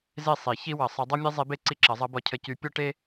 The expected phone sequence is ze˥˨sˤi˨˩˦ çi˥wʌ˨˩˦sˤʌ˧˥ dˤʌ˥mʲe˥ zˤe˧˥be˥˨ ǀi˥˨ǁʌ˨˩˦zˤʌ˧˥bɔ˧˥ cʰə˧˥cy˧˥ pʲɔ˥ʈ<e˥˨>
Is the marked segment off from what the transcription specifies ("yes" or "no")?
yes